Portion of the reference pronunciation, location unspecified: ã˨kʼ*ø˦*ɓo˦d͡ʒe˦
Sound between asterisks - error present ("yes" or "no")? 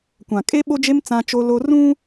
yes